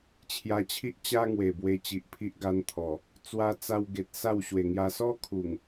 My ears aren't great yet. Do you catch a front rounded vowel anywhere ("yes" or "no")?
no